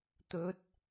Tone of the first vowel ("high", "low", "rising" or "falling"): rising